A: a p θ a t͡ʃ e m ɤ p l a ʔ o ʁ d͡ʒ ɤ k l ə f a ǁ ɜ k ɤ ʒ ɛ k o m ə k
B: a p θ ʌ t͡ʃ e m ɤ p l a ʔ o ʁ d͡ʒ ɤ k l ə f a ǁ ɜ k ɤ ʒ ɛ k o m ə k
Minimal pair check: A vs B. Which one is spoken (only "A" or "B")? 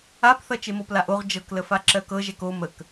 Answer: B